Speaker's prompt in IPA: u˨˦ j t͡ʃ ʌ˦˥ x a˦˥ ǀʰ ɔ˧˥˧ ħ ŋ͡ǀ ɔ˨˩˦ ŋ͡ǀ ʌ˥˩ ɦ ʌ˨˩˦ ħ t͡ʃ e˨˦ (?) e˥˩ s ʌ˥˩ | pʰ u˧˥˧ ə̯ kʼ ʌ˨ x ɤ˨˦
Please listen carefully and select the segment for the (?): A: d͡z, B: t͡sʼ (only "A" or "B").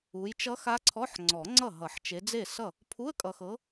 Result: A